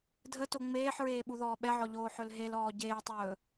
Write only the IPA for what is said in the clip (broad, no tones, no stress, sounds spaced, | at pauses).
dʱ ə t o ŋ͡m eː ħ ɹ eː ɓ u ð ɔː ɓ ɛ ʕ ɔ ʎ oː ħ ɵ l ɦ e l ɔː ɟ eː tˤ ɵː